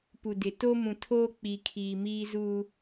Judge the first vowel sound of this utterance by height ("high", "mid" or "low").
high